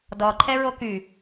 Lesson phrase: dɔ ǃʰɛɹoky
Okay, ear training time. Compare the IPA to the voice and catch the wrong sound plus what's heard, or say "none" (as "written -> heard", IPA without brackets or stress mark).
none